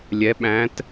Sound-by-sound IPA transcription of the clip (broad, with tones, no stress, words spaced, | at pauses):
lʲɛ˩˧ɓæ̃˩˧t